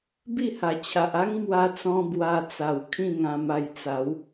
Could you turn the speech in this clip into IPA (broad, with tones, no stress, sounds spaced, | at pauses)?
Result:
b i˥˧ h a˨˩ t͡ɕʰ a˨ ʔ a˦ ŋ m w a˧ t͡s ɔ̃˧ b w a˧ t͡s a˨˩ w kʰ ĩ˥˧ ŋ ã˧ m a˧ j t͡s a˨˦ w